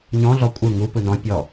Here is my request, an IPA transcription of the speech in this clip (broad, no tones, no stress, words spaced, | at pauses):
ɲɔ̃ɮɔ kʷʼɯ ŋu pɯnɔ̃ pʲɔ